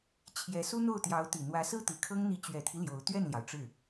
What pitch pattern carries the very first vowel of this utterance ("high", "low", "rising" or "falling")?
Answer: rising